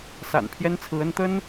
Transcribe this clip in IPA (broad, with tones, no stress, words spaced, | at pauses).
sa̰˨˩npʰjɛ˥nt͡sʰɹ̩˧˥ə˥n t̪ə˥n